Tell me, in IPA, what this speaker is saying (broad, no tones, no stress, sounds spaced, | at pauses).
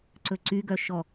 ǀ ɵ ǀ y ɡ œ ʃ ɔ